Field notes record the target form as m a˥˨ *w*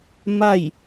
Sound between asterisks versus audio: incorrect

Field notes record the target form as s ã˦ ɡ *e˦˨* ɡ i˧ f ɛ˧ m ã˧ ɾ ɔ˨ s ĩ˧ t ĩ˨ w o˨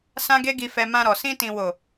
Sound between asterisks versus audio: incorrect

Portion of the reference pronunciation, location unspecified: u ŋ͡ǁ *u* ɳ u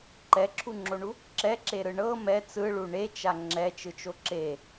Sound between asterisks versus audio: incorrect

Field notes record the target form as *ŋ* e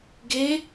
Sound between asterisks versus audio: incorrect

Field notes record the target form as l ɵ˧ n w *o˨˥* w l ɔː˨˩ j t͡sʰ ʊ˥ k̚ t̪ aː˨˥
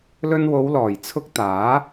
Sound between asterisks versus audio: incorrect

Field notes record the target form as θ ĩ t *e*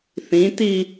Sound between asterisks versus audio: incorrect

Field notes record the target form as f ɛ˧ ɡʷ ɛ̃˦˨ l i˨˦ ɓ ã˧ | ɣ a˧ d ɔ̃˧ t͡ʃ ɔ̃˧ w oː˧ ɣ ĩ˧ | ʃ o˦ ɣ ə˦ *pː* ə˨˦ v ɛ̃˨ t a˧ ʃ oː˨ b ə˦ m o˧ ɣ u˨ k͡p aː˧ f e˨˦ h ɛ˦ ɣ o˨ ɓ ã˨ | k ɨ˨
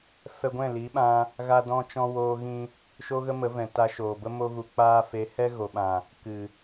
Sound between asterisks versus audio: incorrect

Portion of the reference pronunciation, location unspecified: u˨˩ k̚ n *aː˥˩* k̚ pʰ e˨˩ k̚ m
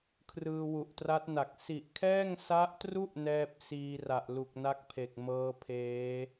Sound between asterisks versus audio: incorrect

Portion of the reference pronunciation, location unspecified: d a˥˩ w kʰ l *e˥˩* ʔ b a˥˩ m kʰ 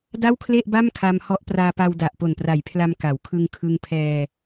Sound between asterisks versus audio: correct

